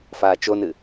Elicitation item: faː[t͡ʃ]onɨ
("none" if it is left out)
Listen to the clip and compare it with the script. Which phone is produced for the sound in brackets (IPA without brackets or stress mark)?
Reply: t͡ʃ